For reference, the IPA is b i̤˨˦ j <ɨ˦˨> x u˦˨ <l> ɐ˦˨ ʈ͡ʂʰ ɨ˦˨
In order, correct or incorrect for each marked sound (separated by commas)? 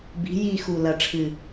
incorrect, correct